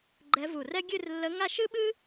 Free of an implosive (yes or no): no